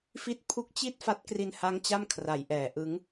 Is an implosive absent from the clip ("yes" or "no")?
yes